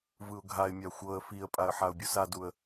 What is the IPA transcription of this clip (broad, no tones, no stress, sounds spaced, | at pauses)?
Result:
v ɯ ʊ̯ ɡʱ a ɪ̯ mʲ a xʷ ɤ ə̯ f i ə̯ pʼ a ə̯ ħ a ʊ̯ bʲ u s a d u ə̯